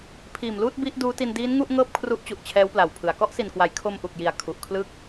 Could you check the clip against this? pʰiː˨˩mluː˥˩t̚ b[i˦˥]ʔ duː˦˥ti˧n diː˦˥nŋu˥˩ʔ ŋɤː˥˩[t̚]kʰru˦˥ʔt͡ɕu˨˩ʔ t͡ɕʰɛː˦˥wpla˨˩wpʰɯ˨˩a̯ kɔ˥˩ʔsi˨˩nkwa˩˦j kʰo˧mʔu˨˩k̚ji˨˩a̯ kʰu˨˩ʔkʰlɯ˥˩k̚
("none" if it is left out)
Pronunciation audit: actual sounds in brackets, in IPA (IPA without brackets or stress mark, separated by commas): i˦˥, p̚